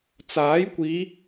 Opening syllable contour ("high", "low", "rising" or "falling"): rising